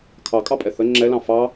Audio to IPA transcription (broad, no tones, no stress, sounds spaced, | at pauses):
kʰ ɑ kʼ ɑ pʼ ɛ θ ə ŋ͡ǁ ɛ l ɑ̃ f ɑ